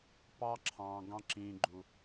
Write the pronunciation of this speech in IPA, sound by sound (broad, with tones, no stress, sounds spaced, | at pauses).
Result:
p ɑ˦ ǁʰ ɑ̃ː˨ ɡ ɑ̃˦ ǁ ĩː˨ ɡ͡ǃ u˨